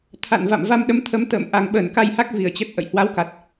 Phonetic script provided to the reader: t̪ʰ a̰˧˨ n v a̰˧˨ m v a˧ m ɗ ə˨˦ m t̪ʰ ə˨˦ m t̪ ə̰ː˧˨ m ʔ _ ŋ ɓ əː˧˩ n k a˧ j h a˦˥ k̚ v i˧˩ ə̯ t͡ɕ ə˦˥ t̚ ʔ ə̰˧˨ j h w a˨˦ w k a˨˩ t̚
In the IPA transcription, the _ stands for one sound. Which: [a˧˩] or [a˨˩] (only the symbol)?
a˨˩